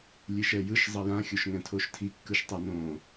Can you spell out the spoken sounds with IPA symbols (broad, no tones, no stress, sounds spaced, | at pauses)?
lʲ e ʃ ɛ j ɯ ʃ zˤ ʌ j ã xʲ o ʃ ŋ ɛ̃ tʰ o ʃ tʰ i kː ɯ ʃ tˤ a n õː